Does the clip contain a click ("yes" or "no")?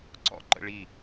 yes